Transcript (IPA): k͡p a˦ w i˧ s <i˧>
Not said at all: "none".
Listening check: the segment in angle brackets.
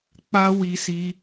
i˧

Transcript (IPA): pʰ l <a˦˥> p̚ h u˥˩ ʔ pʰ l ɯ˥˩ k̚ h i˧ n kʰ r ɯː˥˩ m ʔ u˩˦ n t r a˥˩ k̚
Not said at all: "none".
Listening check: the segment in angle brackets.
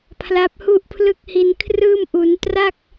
a˦˥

